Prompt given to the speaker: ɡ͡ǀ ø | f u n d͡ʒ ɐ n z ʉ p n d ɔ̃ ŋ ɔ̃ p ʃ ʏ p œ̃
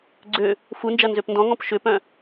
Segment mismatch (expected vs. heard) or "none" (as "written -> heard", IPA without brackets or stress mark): ʉ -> ø